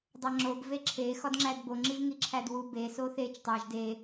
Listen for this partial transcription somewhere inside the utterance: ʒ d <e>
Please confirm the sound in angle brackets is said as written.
yes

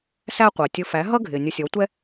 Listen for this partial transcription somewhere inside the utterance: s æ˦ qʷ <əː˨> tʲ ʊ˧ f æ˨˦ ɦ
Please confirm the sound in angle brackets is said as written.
yes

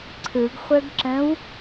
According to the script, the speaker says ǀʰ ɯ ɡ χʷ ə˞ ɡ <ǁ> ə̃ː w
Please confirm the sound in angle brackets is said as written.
yes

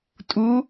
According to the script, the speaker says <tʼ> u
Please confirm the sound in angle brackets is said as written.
yes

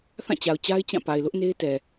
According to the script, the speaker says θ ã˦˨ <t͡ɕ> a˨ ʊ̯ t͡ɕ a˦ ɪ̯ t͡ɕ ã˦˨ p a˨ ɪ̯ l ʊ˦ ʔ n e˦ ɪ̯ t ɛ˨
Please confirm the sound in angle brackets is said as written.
yes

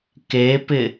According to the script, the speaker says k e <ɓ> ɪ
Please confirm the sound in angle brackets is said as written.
no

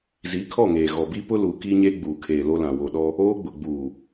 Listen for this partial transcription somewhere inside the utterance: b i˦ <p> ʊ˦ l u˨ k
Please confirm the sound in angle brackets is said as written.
yes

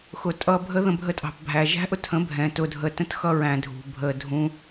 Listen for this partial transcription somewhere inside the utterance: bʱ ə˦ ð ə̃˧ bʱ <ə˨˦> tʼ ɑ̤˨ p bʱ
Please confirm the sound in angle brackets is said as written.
no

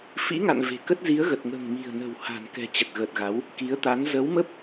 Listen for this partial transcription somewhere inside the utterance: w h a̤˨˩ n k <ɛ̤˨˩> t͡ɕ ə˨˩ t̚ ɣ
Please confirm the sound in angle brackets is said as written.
yes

